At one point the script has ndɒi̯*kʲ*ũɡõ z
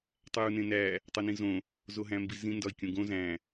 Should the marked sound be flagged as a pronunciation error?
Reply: no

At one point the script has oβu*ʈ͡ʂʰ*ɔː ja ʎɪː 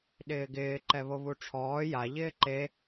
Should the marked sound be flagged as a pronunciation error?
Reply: no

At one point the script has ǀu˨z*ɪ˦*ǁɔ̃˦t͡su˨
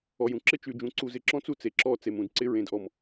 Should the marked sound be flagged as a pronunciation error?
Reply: yes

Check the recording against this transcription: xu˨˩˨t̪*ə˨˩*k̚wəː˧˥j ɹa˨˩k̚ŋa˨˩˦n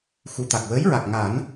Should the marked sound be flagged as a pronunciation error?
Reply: yes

